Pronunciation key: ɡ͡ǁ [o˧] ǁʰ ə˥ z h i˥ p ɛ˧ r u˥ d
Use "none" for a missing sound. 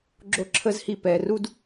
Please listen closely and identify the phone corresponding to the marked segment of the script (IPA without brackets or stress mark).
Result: o˥